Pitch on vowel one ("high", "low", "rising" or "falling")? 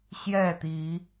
falling